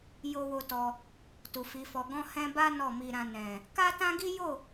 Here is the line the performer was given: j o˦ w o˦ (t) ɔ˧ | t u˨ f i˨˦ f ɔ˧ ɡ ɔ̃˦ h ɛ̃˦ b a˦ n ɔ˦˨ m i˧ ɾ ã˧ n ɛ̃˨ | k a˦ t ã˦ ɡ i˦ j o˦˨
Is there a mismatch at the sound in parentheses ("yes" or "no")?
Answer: no